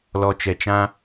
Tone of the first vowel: low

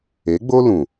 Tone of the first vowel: rising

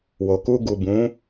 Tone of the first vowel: low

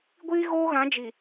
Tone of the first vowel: high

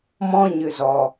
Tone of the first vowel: high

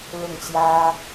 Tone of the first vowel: falling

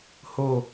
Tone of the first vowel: low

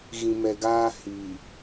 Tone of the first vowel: low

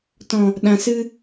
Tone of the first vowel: low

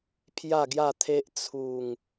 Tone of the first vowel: falling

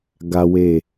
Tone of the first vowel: high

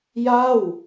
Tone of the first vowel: falling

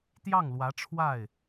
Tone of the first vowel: falling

